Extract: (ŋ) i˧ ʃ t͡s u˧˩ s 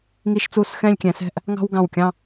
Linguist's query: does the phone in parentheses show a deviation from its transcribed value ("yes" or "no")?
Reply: no